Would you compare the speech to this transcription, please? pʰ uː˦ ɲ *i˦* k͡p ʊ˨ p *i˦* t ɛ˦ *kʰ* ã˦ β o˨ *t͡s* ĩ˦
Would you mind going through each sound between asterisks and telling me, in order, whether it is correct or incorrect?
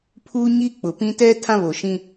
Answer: correct, incorrect: ĩ˦, incorrect: tʰ, incorrect: ʃ

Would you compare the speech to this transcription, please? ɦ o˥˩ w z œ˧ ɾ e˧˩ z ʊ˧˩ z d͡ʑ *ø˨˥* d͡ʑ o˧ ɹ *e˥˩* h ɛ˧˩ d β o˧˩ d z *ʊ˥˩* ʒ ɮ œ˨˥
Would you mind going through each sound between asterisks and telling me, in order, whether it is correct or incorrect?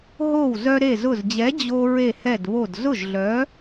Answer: incorrect: ɛ˨˥, incorrect: e˧˩, correct

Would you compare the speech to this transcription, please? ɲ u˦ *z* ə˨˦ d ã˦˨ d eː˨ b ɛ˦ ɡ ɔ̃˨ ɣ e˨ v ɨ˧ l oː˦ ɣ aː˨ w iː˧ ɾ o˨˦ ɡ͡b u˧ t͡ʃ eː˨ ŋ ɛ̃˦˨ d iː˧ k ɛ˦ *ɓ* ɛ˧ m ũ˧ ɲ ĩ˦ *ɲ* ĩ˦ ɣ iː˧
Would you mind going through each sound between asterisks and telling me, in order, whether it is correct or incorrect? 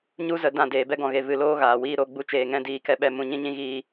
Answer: correct, correct, correct

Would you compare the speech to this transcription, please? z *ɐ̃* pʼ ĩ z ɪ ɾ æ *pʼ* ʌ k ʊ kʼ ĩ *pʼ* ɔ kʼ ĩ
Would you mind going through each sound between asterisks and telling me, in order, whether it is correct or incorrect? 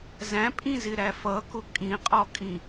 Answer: incorrect: æ̃, incorrect: f, incorrect: qʼ

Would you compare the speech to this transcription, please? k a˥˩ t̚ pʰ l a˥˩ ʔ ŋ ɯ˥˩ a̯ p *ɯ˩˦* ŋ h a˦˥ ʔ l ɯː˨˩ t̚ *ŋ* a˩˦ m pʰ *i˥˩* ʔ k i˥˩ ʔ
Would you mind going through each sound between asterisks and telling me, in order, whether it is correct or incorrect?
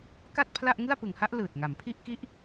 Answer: correct, correct, correct

